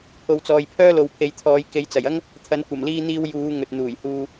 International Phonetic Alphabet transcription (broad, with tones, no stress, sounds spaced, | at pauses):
pʰ o˨ w t͡s ɔː˨ j pʰ œː˥ l o˨ w pʰ e˨˧ j t̪ʰ ɔː˨˧ j k e˨˧ j t͡s ɐ˨˩ j ɐ˥ ŋ | t̪ʰ ɐ˨˧ n kʷ ɐ˨˩ m l iː˧ n̪ iː˧ w j uː˨˧ ŋ ɵ˨ t̚ n̪ uː˨˩ j h uː˧